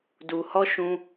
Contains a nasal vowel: yes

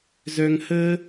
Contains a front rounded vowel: yes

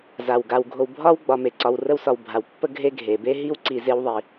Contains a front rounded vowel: no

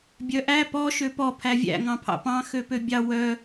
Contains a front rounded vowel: yes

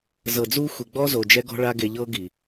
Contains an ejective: no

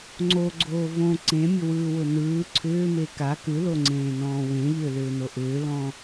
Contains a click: yes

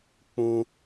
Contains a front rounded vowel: no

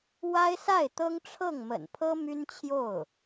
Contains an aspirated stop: yes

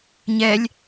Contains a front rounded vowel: no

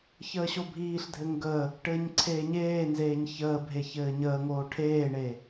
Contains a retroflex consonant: yes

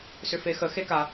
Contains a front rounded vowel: yes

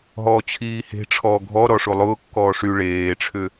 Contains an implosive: no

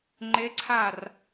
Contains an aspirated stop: yes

